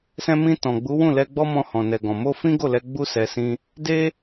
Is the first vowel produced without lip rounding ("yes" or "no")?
yes